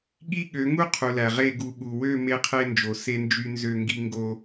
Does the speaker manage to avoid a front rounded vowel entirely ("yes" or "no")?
no